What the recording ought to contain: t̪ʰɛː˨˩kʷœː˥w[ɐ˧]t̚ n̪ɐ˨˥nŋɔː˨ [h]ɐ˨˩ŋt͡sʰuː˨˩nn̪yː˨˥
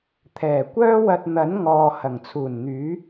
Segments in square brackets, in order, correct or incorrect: correct, correct

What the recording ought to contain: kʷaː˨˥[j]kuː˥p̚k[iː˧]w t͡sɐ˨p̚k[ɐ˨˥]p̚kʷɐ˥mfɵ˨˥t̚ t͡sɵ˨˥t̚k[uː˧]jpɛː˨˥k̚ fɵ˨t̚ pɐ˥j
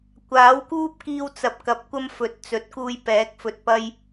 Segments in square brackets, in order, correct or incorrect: incorrect: w, correct, correct, correct

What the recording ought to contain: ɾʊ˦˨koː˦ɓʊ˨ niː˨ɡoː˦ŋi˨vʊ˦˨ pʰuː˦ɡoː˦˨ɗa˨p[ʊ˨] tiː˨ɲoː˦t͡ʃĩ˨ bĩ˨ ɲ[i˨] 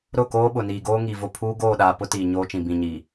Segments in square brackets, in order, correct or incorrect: incorrect: ʊ˦, correct

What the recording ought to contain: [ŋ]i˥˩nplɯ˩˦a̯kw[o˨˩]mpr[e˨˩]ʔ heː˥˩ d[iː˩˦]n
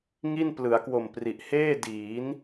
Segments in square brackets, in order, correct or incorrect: correct, correct, incorrect: i˨˩, correct

